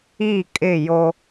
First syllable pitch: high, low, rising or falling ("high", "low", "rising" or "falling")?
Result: falling